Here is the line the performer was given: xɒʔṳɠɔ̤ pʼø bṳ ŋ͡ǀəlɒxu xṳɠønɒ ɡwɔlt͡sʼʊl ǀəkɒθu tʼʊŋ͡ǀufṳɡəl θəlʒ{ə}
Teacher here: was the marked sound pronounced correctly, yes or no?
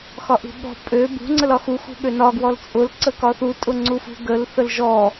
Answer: no